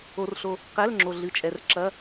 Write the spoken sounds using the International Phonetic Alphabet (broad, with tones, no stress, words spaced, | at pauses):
o˧rɬo˧ | qɛ˧˥˧l ŋ͡ǁo˧ɮɨ˧t͡ʃʼɛ˧r ǁɐ˧˥˧